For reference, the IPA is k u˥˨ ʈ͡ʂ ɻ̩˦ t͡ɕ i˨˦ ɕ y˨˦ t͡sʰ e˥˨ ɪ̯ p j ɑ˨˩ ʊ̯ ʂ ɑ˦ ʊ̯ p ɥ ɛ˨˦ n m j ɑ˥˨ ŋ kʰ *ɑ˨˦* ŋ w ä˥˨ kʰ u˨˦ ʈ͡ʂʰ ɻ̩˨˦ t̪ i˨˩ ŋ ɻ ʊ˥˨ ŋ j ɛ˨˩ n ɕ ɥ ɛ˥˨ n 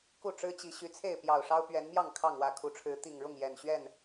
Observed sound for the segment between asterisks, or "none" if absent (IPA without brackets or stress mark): ɑ˥˨